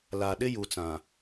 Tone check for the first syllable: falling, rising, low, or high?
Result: low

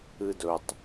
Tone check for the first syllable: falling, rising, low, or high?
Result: low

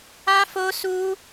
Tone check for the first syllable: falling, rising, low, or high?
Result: high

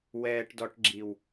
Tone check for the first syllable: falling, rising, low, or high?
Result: low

